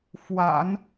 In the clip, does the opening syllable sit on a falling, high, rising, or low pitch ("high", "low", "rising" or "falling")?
low